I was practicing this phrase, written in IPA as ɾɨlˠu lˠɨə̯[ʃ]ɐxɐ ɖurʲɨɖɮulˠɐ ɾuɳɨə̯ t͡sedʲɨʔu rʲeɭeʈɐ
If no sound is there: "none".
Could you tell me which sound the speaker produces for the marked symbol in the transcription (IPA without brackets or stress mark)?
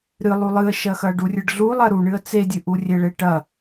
ʃ